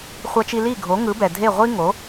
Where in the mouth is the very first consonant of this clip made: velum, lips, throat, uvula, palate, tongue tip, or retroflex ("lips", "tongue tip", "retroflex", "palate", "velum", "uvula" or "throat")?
uvula